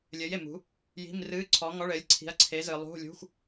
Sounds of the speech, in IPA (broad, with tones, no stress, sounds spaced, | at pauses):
lʲ ɘː˨˥ j e˨ m ṳ˨˥ | j i̤˧˥˧ m r ɨː˧˥˧ ǀʰ ɔ˨˥ ŋ ɔ˧˥˧ ɭ ɘː˨˥ lʲ ǀʰ i̤˨˥ ɐ̯ ǀʰ e˨˥ z ɨ˨ lˠ ṳ˧˥˧ lʲ ṳ˧˥˧ xʷ